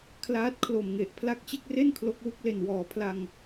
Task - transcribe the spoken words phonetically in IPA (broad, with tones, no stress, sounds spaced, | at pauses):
kʰ l aː˦˥ t̚ kʰ l o˨˩ m ŋ e˨˩ ʔ pʰ l a˦˥ k̚ t͡ɕ e˥˩ k̚ r e˥˩ n kʰ l o˦˥ k̚ w u˦˥ k̚ l e˧ n w ɔː˩˦ pʰ l a˧ ŋ